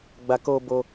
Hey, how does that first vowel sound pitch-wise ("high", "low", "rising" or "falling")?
low